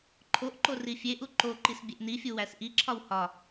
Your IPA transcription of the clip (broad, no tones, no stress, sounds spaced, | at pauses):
ǃʰ o ʔ ǃ o r i fʲ e ʔ u ǃ o ǃ i s bʲ e ʔ n i fʲ u w æ s ʔ i ǁʰ ɒ w h ɒ